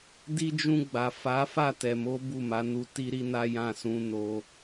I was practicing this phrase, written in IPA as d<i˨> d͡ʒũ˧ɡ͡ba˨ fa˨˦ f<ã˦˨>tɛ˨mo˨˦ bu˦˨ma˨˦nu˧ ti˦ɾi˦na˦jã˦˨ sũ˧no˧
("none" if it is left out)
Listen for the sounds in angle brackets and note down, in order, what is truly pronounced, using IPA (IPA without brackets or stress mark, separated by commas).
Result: i˦, a˦˨